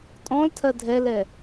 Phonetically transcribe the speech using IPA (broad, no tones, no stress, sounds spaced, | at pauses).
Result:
tʼ ɔ̃ l tʰ ɜ dʱ ɛ l ɛ